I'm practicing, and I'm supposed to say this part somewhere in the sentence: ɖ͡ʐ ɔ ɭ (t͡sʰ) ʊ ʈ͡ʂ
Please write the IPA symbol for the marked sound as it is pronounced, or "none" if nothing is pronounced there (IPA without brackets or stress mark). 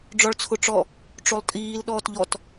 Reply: t͡sʰ